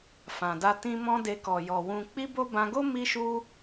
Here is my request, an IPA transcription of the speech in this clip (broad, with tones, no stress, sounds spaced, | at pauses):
f ã˨ d a˧ t ĩ˧ m ɔ̃˦ d e˧ k ɔ˨ j ɔ˨ w ũ˧ k͡p i˦ b o˦ b ã˧ ɡ o˦ m i˦ ʃ u˦